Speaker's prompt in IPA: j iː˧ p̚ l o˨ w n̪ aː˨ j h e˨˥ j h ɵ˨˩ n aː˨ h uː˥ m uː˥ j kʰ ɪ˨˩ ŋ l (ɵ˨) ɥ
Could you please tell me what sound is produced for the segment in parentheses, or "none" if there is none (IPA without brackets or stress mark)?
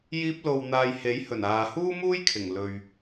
ɵ˨